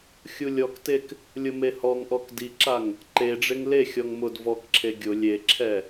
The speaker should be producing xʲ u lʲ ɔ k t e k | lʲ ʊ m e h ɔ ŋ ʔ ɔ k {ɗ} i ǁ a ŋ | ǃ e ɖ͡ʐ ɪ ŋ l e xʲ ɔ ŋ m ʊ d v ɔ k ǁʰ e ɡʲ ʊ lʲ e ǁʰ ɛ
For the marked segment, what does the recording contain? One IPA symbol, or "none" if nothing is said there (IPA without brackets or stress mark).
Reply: d